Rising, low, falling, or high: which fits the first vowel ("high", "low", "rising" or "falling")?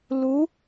rising